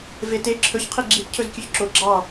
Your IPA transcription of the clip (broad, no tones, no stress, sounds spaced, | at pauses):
v e t e ǁʰ ɵ ç qʰ i ɡ͡ǁ i t cʰ ɵ z kʲ ʉ ç ǁ o ɡ͡ǁ ɑ